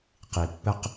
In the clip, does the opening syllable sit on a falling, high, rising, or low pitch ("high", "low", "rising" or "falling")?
low